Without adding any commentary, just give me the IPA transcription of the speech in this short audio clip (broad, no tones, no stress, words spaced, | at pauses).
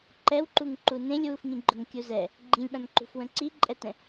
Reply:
ǃɛwǃuŋ ǃunẽlʲwufŋĩ ɡ͡ǃʊŋkʲuzɛ | ɡ͡ǃĩlʲɓãnǃṳfwə̃ ǀiǃʼɛtɛ̃